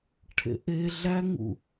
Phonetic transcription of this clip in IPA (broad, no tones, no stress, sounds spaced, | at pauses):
ʈʰ ḛ ʔ e ɮ æ ŋ ṵ